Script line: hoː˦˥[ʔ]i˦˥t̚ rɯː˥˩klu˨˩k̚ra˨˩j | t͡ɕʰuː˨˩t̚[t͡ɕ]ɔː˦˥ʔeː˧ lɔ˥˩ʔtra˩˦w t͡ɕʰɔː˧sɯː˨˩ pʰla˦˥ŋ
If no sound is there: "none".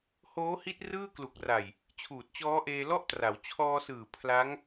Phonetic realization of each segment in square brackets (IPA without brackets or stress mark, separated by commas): h, t͡ɕ